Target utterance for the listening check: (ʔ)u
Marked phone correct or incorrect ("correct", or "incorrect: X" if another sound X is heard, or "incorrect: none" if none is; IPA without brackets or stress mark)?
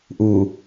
correct